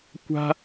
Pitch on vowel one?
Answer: high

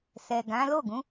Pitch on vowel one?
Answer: low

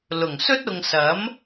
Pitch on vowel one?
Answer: low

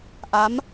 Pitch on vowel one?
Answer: rising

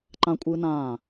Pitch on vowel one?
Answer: high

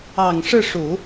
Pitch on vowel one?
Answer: low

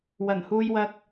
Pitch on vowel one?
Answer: low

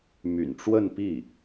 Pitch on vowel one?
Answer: low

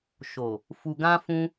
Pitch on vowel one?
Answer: low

